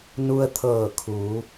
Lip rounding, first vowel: rounded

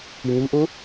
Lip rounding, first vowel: unrounded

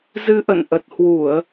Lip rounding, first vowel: unrounded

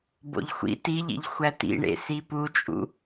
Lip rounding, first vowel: rounded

